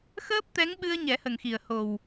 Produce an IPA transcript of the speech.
x əː˦˥ p̚ t̪ ɛ˧˥ ŋ ɓ ɨ˧ ə̯ ɲ ɛ˨˩˦ h ə˨˩ ŋ x i˨˩ ə̯ h o˨˩ w

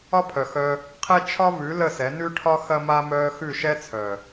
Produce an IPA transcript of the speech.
ɒ˦ pʰ œ˨ x œː˧ | qʰ ɛ˦ t͡ʃʰ ɒ˦ v ʉ˨˦ l ə˦˨ s ɛ˨˦ n ʉ˦ ʈʰ ɒ˦ x ɐ˦ m a˦ m œː˧ x ʉ˦˨ ʃ ɛ˦ t͡sʰ œː˨

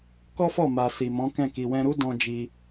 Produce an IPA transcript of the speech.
k ɔ˦ f ɔ˦˨ m a˨ s i˨ m ɔ̃˨˦ k ɛ̃˦˨ k i˨ w ɛ̃˧ ɾ u˦ d ɔ̃˦ d͡ʒ i˧

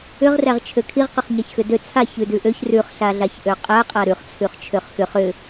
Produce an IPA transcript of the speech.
ʏ ʁ r æ ʁ t͡ʃʰ ø kʰ i ʁ q ʏ χ ɲ a ç x ʏ d ø t͡sʰ a ç ʉ d ʉ ʔ ø ç r ʉ χ ɬ a ɮ a ç ʔ ø qʼ æ qʼ a ɾ ʉ χ t͡sʰ ʉ χ t͡ʃʰ ø χ x ʏ χ ʏ

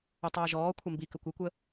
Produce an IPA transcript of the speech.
ə tˤ əː ʒ ɔː kʷʰ ɛ m b i k ə kʷ ɪ kʷ ə

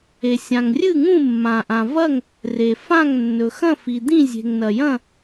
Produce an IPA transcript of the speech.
e˩ sʲ ã˩ ŋ rʲ ɨ˥˨ ŋ ũ˥˨ mː ã˩ ʔ ã˩ v ɐ˥˨ ŋ | r e˩ f ã˥˨ ŋ nː ɵ˩ x ɐ̃˥˨ f i˩ d̪ ĩ˥˨ zʲ e̤˩ ŋ n ɐ˩ j ɐ̃˥˨

